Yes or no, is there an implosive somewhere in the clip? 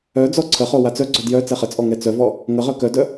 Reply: no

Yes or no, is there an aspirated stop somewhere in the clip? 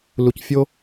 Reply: no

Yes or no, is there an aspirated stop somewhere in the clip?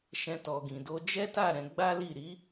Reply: no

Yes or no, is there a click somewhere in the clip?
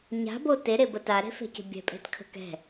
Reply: no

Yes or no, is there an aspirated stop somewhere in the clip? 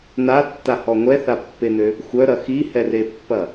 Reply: no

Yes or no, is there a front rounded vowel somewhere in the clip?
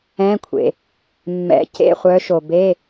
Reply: yes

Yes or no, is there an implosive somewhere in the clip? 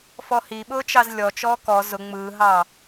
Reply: yes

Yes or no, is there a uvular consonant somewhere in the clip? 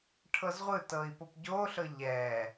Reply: yes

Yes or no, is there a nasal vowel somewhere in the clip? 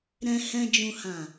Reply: yes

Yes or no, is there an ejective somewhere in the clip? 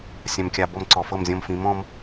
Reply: no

